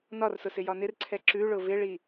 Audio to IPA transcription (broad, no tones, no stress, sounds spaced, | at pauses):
n ɒ r s ʊ s ɪ j ɒ n ɪ r ǀʰ ɛ ǁ ʉ ɭ ʊ v ɪ ɭ i